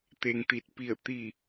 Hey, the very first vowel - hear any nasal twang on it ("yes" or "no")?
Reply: no